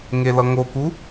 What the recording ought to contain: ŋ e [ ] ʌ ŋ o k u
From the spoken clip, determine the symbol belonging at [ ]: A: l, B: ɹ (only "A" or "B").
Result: A